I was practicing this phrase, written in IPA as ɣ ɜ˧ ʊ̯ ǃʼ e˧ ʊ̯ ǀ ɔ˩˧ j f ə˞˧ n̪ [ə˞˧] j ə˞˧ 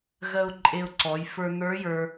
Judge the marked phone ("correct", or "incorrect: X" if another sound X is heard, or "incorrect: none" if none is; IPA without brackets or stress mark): incorrect: ə˞˧˥